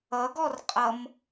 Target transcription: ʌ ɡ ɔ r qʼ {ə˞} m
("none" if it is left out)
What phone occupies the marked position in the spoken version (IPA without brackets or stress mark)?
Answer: ʌ